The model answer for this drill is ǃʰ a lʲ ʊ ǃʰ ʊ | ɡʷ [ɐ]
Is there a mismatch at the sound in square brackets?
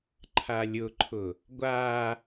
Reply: yes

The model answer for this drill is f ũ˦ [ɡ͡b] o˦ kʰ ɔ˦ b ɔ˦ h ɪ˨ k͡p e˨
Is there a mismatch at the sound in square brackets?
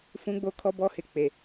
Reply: no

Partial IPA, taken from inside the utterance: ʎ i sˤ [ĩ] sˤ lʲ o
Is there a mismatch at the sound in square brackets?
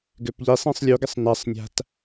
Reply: no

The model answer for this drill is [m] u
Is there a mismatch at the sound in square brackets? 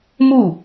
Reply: no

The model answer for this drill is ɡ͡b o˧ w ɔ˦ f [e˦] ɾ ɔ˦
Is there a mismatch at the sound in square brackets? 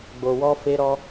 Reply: no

